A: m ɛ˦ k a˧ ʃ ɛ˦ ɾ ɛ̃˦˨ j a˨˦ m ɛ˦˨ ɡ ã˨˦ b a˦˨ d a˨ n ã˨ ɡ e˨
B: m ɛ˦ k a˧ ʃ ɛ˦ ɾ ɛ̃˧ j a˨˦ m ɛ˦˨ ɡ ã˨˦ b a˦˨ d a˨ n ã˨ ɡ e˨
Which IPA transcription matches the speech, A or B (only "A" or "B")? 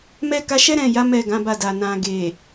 A